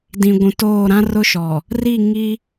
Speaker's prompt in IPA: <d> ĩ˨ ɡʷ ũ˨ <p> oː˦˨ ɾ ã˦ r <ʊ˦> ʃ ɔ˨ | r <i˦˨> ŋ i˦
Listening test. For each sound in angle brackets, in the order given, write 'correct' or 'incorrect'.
correct, incorrect: t, correct, correct

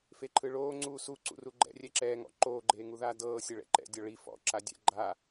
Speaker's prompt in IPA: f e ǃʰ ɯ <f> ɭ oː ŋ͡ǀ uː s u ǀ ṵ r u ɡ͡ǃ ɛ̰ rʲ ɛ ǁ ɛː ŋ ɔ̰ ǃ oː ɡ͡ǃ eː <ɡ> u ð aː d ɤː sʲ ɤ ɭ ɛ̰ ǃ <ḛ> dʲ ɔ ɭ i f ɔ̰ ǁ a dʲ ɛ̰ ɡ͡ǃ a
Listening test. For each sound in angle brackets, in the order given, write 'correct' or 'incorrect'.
incorrect: none, incorrect: ŋ, incorrect: ɛ̰

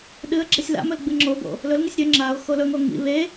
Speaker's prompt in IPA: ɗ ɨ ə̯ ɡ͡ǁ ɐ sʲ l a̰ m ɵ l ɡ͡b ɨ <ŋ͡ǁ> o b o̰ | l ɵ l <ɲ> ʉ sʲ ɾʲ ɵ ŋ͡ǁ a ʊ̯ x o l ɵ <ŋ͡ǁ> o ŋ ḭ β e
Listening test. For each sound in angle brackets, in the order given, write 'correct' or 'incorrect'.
correct, incorrect: ŋ, incorrect: ŋ

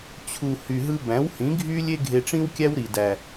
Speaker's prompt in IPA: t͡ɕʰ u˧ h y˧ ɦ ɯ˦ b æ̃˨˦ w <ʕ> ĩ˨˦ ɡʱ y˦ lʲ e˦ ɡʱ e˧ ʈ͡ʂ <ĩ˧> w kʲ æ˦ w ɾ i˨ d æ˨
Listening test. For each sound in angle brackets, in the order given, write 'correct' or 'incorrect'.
incorrect: h, incorrect: ĩ˦

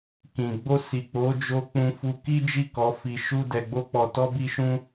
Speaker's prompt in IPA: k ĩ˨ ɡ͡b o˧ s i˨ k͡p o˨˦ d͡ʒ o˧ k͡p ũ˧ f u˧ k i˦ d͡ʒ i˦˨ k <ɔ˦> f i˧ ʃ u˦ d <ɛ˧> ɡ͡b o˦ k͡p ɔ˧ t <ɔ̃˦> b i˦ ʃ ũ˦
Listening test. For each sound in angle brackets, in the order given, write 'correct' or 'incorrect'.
incorrect: ɔ˨˦, correct, incorrect: ɔ˦

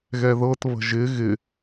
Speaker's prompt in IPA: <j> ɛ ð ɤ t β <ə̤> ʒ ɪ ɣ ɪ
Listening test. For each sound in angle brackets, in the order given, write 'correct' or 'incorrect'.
incorrect: ɣ, correct

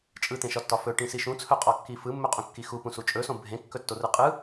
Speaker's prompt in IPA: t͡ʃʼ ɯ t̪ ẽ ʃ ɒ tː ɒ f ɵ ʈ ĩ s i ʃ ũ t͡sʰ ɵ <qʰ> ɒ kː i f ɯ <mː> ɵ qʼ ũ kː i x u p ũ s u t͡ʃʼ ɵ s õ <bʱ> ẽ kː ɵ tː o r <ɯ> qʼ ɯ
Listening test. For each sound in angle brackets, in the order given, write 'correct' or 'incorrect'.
incorrect: qʼ, correct, correct, correct

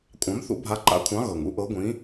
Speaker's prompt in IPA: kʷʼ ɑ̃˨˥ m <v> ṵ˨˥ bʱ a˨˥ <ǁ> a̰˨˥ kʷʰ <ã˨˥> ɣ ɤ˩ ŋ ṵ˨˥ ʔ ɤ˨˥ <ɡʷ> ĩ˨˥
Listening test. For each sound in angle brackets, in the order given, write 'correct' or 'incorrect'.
incorrect: θ, incorrect: ǃ, incorrect: ɑ̃˨˥, correct

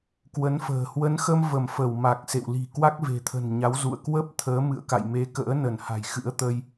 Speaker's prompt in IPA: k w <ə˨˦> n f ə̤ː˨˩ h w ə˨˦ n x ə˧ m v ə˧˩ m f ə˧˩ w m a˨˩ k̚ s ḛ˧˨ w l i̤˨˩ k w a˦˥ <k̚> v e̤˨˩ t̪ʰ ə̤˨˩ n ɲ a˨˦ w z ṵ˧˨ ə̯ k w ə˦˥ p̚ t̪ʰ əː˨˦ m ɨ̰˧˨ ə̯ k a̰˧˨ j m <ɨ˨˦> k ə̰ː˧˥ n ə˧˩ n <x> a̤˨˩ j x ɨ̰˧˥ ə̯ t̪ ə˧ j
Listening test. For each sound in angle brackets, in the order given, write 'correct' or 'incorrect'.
correct, correct, incorrect: e˨˦, incorrect: h

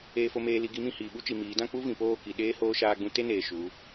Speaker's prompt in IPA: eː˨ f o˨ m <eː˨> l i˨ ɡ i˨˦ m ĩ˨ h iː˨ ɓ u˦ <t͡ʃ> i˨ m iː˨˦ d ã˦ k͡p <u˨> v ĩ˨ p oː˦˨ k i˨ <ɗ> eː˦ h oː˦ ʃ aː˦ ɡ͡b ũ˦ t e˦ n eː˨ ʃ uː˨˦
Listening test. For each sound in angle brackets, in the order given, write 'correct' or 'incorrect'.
correct, correct, incorrect: u˦, correct

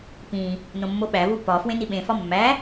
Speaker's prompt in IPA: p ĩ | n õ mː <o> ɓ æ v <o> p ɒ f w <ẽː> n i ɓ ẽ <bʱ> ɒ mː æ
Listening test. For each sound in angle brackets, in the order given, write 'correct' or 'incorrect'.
correct, incorrect: u, incorrect: ẽ, incorrect: f

